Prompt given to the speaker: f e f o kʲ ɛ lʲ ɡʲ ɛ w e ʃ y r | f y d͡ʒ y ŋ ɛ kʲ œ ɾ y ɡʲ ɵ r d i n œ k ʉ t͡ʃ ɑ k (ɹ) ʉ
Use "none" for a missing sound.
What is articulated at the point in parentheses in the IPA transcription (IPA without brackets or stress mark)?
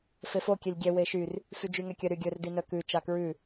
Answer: ɹ